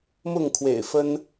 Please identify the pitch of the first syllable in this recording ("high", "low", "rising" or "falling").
falling